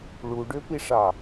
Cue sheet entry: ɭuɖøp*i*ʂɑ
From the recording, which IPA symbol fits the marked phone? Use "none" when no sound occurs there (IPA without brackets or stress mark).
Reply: i